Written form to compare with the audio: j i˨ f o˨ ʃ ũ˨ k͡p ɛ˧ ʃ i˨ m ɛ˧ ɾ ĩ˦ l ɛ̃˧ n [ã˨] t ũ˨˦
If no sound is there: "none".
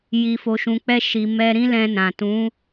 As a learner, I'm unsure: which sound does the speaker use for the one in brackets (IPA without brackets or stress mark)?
ã˨